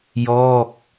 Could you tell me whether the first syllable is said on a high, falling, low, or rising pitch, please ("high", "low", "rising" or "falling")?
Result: falling